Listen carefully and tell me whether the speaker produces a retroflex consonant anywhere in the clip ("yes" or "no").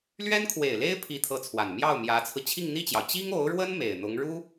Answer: yes